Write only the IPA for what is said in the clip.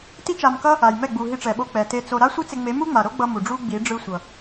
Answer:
t i˦ t͡ʃ a˧ m k ʌ˦ | a˨ j m ɛ˦˨ ɡ͡b u˨ ɦ i˧ ʈ͡ʂ ɛ˨ ɓ o˧ k͡p ɛ˨ t e˧ t͡s o˧ ɾ a˦ sʷ ɯ˦ t͡s e˧ ŋ͡m e˨˦ m u˦ ŋ͡m a˨ ɾ o˦ ɡ͡b ʌ˧ m u˨ ɖ͡ʐ u˦ ɡ͡b i˨˦ ɖ͡ʐ ɯ˧ sʷ ʌ˨

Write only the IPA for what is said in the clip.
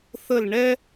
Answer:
θ ə˥˧ l ɳ ɛ˥

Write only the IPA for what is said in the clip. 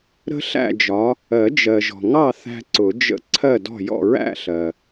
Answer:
ɾ ə̤˦ ɬ æ̰˥˨ d͡ʒ ɒ˨˦ | ɜ˨˩˦ d͡ʒ ɜ˨ ʒ ɔ̤˨ ŋ ɑ˥˨ θ æ̤˦ ǀ ʊ˨˩˦ d͡ʒ ə̰˦ ǀʰ ɜ˥˨ d ɔ̤˥˨ j ɔ̰˥˨ ɹ æ̰˥˨ ɬ ɜ˨

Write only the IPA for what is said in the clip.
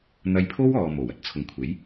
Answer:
n̪ ɐ˧ j pʰ o˥ w ɔː˨ m o˨˩ w ɐ˨˥ t̚ t͡sʰ ʊ˨ ŋ kʷʰ e˨˥ j

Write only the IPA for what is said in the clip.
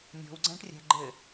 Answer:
nʲ ɔ̤ w ɡ͡ǀ æ̃ ʈ rʲ æ̤ ɡ͡ǃ ɘ

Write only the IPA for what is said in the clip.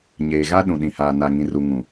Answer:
ɲ eː˨ ɣ a˦ ɗ ũ˨ ɗ ĩ˨ h aː˨ n a˨ ŋ ĩ˨ r u˨ ŋ ũ˨

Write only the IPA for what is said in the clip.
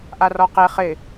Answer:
ʔ a r ɔ q e χ ɪ

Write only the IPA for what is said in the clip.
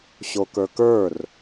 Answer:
ɕ o k ə˞ k ə˞ r

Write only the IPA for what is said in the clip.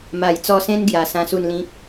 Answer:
m a˨˩ j t͡s ɔ˧ s ẽ˦ n ɡ j a˨˩ s ã˧ s u˥˧ n l ĩ˦ k̚

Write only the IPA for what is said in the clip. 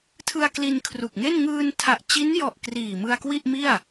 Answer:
tʰ ɯ˧ a̯ k l i˧ n kʰ r u˨˩ k̚ ŋ e˥˩ n ŋ ɯː˧ n tʰ a˨˩ ʔ t͡ɕ i˦˥ n j ɔ˨˩ ʔ k r iː˨˩ m ɯ˧ a̯ k w i˥˩ ʔ m i˥˩ a̯

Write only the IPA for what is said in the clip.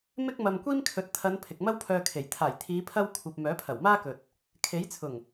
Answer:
m ɪ˥ k̚ m ɐ˧ m kʷ iː˥ m kʰ ɵ˨˥ t̚ t̪ʰ ɐ˨˧ n pʰ ɪ˨ k̚ m ɐ˥ w pʰ œː˧ kʰ e˨˩ j t̪ʰ aː˨˩ j t̪ʰ iː˨˧ pʰ ɐ˥ w kʷʰ ɐ˧ p̚ m œː˨˥ pʰ ɐ˨˩ w m aː˥ k ɵ˨ t̚ | kʰ e˨˥ j t͡sʰ ʊ˨˩ ŋ

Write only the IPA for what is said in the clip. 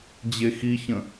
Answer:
d͡ʑ e x i ç ə̃

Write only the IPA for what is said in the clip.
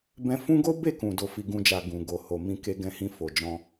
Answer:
b ɛ̃˧ f ũ˦ ɡ o˦ b e˦˨ k ũ˨ d o˨ f i˨ ɡ ũ˧ d͡ʒ a˨ ɡ ũ˨ ɡ o˨ h o˨ m ĩ˧ k e˧ ɡ ɛ̃˧ h ĩ˧ f o˨ d͡ʒ ɔ̃˧

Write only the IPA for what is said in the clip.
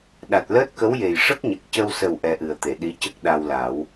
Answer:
ɗ a˨˩ t̚ l əː˦˥ t̚ k ə˧˥ w j e˨˩ j ʂ ə˦˥ k̚ ɲ ə˨˩ k̚ c ə˧ w s ə˨˩ w ʔ ɛ˧ ʔ ɨ˨˩ ə̯ t̪ e˨˩˨ ɗ i˧˥ c ə˦˥ k̚ ɗ a˧ w l a˨˩˦ w

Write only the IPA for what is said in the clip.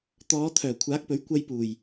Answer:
t̪ ɔː˨˧ t̪ʰ œː˨˩ kʷʰ aː˨˥ k̚ p ɵ˨˥ ɥ kʷ ɐ˥ j p uː˨˩ j

